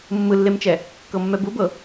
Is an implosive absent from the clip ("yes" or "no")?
yes